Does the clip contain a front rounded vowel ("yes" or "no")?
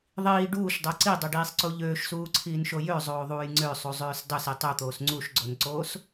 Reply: yes